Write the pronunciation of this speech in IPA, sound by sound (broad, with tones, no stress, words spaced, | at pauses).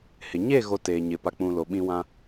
hɪ˨ ɲe˦˨ɣo˨ teː˨ɲɪ˨ pa˨k͡pũ˨ lo˨ɓĩ˦ wã˦